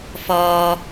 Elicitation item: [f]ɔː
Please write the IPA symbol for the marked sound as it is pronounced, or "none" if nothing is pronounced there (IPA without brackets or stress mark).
f